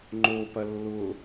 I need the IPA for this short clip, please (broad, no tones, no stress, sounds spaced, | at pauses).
ŋ͡ǃ o p ɐ lː ʊ